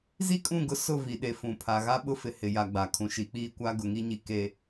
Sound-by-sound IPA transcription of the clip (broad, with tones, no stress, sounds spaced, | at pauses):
z i˦ kʼ ũ˦˨ ɡ ʊ˦ s ʊ˦˨ v i˨ ɗ e˨ f ũ˨ pʰ a˨ ɣ a˦ ɓ ʊ˦ f ɪ˨ h ɪ˨ j a˨ ɡ͡b a˨ kʰ ũ˨ ʃ i˨ k͡p iː˦ kʷ a˦ ɡ ʊ˨ ŋ i˦ ɲ i˨ k e˨